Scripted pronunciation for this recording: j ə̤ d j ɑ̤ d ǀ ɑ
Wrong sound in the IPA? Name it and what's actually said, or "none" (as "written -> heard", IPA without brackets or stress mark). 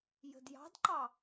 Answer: ǀ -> ǃ